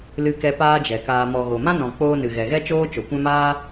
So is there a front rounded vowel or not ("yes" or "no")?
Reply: no